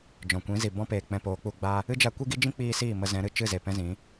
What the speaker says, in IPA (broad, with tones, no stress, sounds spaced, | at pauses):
d͡ʒ ɔ̃˨ kʷ ĩ˨˦ z i˨ b ɔ̃˦ p eː˨ k͡p ɛ̃˧ p oː˨˦ k͡p u˧ ɡ͡b a˦ | ɨ˦ d͡ʒ a˧ kʷ i˦ ɡ i˦ d͡ʒ ĩ˦ k͡p iː˧ s iː˦˨ m ə˧ z ɛ̃˨˦ ɾ ɨ˨ t͡ʃ ɨ˦˨ z e˨ p ɛ̃˦ z ĩ˨˦